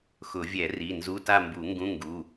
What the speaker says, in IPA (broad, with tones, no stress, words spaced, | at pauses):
xʊ˨˩˦vʲɛ˨˩˦ri˩˧˩ nzu˧˥˧ta˥˧mbu˨˩˦ ŋɡũ˧˥˧ŋɡu˩˧˩